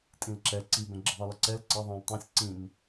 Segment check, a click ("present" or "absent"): present